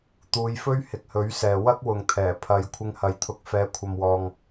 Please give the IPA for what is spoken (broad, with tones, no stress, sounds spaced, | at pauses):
t̪ uː˨˧ j f ɵ˥ ɥ h ɪ˨ k̚ h ɵ˨˥ ɥ s ɛː˨ w ɐ˥ k̚ w ʊ˨ ŋ t̪ʰ ɛː˨˩ pʰ ɐ˨˧ j kʷʰ ɪ˧ ŋ h ɐ˨ j t̪ʰ ʊ˨˥ k̚ f ɛː˨˥ kʷʰ ɐ˧ m w ɔː˧ ŋ